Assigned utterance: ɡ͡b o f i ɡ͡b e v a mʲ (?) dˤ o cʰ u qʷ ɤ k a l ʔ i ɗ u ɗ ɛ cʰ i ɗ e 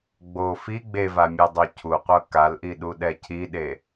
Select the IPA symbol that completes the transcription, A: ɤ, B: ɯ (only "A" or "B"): A